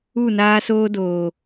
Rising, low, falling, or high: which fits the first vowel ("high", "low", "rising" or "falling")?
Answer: falling